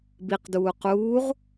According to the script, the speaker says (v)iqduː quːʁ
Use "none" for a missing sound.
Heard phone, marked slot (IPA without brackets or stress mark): b